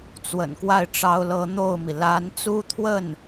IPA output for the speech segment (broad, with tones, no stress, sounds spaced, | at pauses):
t͡s w ə̰˨˩ n k w a˥˩ ɪ̯ ʈ͡ʂ ɑ˥ ʊ̯ l ɤ˥ n̪ o˥˩ ʊ̯ m i˩ l a˧˥ n t͡s u˥ t̪ʰ w ə˥˩ n